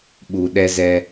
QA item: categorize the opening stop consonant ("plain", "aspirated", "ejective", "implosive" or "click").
implosive